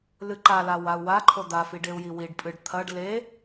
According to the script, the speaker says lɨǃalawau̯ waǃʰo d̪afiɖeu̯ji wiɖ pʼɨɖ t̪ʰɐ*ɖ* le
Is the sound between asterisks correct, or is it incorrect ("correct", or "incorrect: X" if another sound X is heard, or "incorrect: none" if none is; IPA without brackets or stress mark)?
correct